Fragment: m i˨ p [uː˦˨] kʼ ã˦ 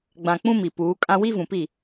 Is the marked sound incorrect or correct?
incorrect